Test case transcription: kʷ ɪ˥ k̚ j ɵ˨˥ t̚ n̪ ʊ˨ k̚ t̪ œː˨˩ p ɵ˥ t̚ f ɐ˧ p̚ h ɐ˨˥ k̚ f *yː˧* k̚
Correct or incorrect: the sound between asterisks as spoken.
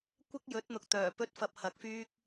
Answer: correct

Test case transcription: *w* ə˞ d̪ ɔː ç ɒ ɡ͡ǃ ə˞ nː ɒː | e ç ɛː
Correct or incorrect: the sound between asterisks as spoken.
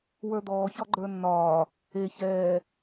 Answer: correct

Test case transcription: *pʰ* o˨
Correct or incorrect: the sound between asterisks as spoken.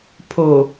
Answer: correct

